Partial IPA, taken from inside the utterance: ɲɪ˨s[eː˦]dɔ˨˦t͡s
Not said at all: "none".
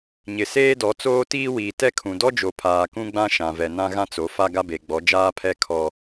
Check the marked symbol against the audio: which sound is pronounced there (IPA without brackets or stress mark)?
eː˦